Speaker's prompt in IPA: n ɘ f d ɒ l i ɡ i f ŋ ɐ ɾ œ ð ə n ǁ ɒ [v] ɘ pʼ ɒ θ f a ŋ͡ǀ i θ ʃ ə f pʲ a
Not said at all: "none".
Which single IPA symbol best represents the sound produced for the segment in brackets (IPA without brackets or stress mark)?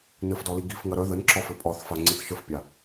f